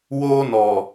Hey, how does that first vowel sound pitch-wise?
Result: high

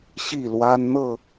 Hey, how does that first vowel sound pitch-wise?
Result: falling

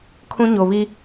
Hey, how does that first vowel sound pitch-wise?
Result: high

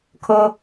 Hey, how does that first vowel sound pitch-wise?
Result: low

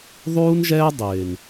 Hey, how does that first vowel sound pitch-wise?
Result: high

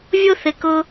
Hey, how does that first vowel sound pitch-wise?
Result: high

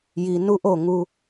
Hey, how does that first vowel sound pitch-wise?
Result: low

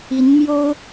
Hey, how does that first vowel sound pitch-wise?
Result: rising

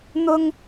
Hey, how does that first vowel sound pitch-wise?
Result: high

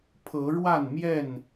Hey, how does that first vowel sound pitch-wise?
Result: rising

